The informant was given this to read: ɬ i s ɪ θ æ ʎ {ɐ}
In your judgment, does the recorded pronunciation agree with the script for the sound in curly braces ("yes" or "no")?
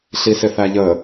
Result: no